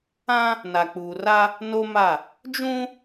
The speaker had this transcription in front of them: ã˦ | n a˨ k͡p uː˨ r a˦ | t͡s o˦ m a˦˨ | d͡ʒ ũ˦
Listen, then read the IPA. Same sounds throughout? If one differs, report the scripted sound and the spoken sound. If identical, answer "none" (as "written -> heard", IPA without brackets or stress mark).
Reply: t͡s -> n